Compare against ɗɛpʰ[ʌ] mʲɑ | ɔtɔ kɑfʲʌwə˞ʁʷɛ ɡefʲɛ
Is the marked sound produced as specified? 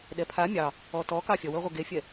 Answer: no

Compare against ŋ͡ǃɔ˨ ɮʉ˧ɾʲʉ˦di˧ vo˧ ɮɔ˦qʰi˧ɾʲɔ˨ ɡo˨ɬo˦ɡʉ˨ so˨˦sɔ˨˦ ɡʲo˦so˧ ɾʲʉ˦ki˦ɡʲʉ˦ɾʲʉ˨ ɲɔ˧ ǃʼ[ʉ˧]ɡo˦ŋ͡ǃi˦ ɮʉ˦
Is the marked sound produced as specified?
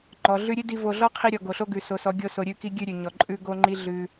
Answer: no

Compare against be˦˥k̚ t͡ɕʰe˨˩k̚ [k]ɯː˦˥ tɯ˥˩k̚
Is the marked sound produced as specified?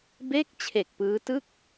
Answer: no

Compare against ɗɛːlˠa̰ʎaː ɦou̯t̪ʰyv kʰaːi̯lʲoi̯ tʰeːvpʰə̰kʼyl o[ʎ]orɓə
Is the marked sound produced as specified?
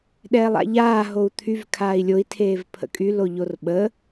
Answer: yes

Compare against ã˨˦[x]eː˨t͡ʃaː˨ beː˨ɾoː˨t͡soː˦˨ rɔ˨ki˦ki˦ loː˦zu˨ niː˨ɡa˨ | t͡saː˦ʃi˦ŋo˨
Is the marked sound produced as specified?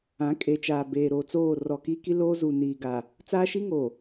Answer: no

